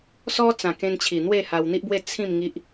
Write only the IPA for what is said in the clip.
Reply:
sɔ˦t͡sã˨˩ kẽ˧nt͡ɕʰi˨˩ n̪we˥˧ha˧wn̪i˦ʔbwe˥˧ t͡sʰĩ˥˧m ŋi˦ʔ

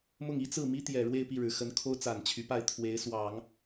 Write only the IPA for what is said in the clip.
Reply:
mʊ˥˩ŋi˥ t͡sɹ̩˥˩mi˥ t̪jɛ˨˩ ɻwe˥˧ɪ̯pi˥˩ɻɻ̩˨˩ xə˧˥nkʰo˥ʊ̯t͡sa˨˩n t͡ɕʰy˧˥pa˥˩ɪ̯ t̪ʰwe˧˥ɪ̯ swɑ˨˩˦ŋ

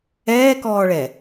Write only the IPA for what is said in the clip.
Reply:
ɛːkɔːɭɛ

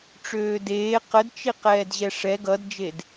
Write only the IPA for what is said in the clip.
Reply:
ʈ͡ʂøːdeː qədt͡ʃi qɛːdʑɛʂɛ ɡʌdd͡ʒed

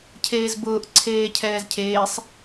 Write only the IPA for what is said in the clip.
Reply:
cʰeːzbʊːʔ ǀʰeːcʰɛːzcʰeːsˤ

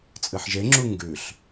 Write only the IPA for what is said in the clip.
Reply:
t͡sʼɨħʒeŋ͡ǁu ŋɡʉɬ

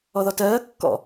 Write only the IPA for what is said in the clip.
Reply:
ɔðɔtɜː kːɔ̰

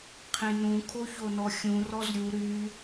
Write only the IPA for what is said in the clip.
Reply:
qʰẽnũ kʰoçonɔxʲũ rɔzɾʲu ɾy

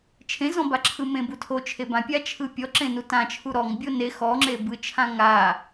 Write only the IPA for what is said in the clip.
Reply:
t͡ʃʰẽzɔ̃baǁʰɯ mẽbutʰot͡ʃʰe bãpʲa t͡ʃʰɯpʲɔ ǁẽnutãt͡ʃʰu ɾɔŋ bʲone xɔŋ͡ǁe bɯt͡ʃʰã ŋa

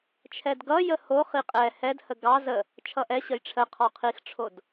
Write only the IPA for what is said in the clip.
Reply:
t͡ʃʰɛdɡʌ jəho χiqʼɛ hɛd həɡɑ zə | t͡ʃʰʌʔɛ ɕəjʈ͡ʂʰə qʰɔqʰixʈ͡ʂʰod

